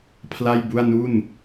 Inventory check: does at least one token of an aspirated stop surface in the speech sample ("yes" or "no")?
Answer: yes